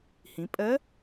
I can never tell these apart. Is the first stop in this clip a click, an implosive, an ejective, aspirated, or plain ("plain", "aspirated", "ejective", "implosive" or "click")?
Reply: ejective